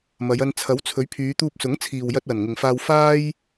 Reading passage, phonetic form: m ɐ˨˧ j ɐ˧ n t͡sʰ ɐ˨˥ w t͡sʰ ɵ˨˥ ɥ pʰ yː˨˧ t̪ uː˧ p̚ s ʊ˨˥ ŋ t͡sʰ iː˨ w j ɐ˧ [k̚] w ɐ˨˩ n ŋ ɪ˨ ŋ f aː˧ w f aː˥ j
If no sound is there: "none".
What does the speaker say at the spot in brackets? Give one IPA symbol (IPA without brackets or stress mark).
t̚